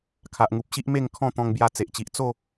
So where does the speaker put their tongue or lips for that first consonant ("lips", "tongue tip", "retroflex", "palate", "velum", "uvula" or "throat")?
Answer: velum